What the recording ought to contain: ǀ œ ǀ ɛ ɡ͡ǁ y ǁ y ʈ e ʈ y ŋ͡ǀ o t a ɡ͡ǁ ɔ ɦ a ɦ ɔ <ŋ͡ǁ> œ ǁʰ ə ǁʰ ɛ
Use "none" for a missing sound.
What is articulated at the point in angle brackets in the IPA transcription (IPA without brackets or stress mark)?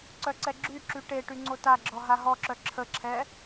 ǁ